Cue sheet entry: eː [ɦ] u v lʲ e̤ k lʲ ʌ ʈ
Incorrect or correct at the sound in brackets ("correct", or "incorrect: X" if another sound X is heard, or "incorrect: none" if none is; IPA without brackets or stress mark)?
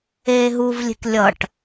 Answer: correct